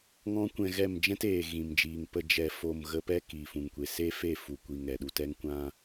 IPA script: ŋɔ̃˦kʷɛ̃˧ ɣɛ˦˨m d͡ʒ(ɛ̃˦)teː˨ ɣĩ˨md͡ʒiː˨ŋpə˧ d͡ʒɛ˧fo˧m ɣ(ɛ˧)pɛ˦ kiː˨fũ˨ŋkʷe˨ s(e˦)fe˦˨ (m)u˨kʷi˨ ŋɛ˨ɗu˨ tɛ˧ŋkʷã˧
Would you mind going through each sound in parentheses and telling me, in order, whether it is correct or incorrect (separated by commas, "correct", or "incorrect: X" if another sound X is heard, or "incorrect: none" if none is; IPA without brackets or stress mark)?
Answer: correct, incorrect: ə˧, correct, incorrect: f